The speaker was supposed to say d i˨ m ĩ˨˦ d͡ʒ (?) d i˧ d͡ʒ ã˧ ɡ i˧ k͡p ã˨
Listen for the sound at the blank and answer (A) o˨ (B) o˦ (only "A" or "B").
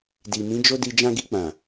B